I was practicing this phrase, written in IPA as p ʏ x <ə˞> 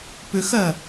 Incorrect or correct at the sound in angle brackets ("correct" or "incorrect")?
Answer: incorrect